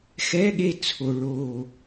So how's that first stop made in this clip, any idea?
implosive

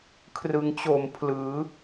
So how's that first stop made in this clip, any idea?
aspirated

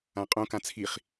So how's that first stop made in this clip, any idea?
ejective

